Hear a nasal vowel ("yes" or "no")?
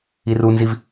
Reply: no